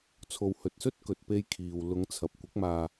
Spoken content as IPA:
t͡sʰ o˨ w h ɵ˨ t̚ s ɵ˥ t̚ k ɵ˨ t̚ p e˧ j kʰ iː˨ w l ʊ˨˧ ŋ t͡sʰ ɐ˨˥ p̚ kʷ ɪ˨˥ k̚ m aː˧

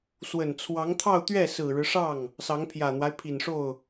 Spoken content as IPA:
s w ə˨˩ n t͡sʰ w ɑ˧˥ ŋ t̪ʰ ɑ˥˧ ʊ̯ t̪ ɥ ɛ˥˩ s ɹ̩˨˩ ɻ ɻ̩˦ ʂ ɑ˥˩ ŋ | s ɑ˧˥ ŋ pʰ j ä˨˩ n̪ w a˦ ɪ̯ pʰ i˨˩ n ʂ o˥˩ ʊ̯

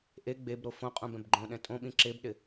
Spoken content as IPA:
ʔ e ɡ͡b e b ɾ o f õ qʼ ũ b ɛ̃ b ɡ͡ǃ õ ɗ ɛ̃ tʼ õ ɓ ĩ ǁ e b ɗ ɪ

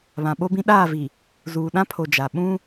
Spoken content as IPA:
β ã˨ ɓ o˦ b ĩ˦ ɗ aː˦˨ v i˨ | z uː˨ ɗ ã˦ pʰ o˨ d͡ʒ a˨ ɓ ũ˦

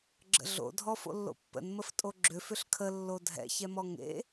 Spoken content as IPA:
ɡ͡ǁ ə̰ ɮ o̰ dʱ ɔ f o̰ lː o̰ pː ə̰ n m ə f tʼ o ɡ͡ǁ ʏ f ʏ ɬ kʰ ə lː o dʱ ɛ̰ ç ɛ m ɔ ŋ ḛ

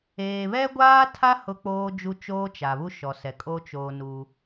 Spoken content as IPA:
eː˨ β ɛ˦ ɡʷ aː˦ tʰ a˦ h ʊ˦ k͡p oː˦ d͡ʒ u˦ t͡ʃ oː˦ t͡ʃ a˨ β u˦ ʃ ɔ˨ s ɛ˨ kʼ o˦ t͡ʃ oː˦ n u˦

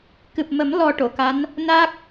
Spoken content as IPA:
k ɨ˨˩ p̚ m ə˨˩˦ m l ɔ˧ ʈ o˨˩˨ k a˧˥ n | n a˦˥ k̚

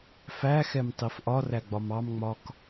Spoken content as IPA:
f æ x ɛ m tˤ i f ʔ ɒ r æ ɡ͡b ɒ m ɑ m ŋ͡m ɒ k

